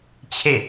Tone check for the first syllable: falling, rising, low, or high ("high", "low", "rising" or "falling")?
falling